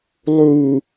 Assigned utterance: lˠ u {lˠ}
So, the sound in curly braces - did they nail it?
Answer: no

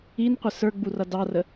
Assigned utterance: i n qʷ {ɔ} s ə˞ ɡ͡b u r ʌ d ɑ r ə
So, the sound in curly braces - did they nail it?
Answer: no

